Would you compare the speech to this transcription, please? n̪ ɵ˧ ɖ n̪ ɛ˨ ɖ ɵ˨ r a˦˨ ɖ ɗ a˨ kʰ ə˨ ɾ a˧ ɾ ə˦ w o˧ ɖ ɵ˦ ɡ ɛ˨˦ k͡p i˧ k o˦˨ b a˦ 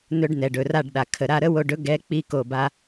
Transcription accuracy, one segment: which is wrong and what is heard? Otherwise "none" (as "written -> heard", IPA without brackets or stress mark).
none